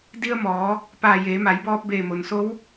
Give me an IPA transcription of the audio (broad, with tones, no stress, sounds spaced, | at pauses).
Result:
d i˧ ə̯ m ɔː˩˧ | p aː˧˩ j eː˩˧ m a˩˧ j b ɔː˧ p̚ b eː˧˩ m o˩ n s o˧˥ w